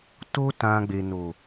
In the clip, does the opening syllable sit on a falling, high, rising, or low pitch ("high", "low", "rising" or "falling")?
high